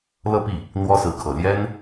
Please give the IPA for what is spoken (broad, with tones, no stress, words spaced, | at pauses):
lɤ˥˧pi˥˩ | n̪wɔ˥sɹ̩˧˥kʰɤ˨˩ ljɛ˥n